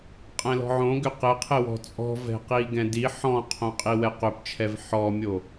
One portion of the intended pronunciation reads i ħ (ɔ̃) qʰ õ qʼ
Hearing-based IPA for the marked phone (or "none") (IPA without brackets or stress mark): ɔ̃